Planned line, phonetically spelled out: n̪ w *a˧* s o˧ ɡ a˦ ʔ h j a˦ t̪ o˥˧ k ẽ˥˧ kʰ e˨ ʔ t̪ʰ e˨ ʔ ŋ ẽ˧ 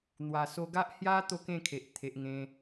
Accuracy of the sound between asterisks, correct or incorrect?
incorrect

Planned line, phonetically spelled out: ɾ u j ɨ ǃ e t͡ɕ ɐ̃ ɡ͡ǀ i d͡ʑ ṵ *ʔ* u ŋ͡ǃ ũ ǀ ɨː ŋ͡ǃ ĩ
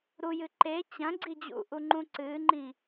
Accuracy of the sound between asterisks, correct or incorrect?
correct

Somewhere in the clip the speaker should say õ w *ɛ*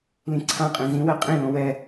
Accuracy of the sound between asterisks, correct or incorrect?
correct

